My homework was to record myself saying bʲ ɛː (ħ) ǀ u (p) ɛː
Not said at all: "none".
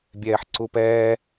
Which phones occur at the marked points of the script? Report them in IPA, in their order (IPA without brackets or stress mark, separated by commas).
ħ, p